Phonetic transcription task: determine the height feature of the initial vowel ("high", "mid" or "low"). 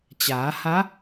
low